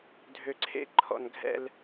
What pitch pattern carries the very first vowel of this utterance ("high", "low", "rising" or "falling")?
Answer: low